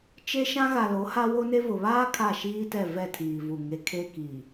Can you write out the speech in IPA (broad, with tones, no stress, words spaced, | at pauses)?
t͡ʃe˦ʃã˦ ɣa˨lo˨˦ ha˦wo˦ne˦ vʊ˨βaː˦ kʰa˦˨ʃiː˦tɛ˦˨ vɛ˦˨tʰiː˨vu˨ ŋe˨ kʰe˦kiː˨